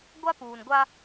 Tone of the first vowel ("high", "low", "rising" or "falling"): high